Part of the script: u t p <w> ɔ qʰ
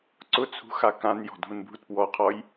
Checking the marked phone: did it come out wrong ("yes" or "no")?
no